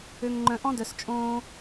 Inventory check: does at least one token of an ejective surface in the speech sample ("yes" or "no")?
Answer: yes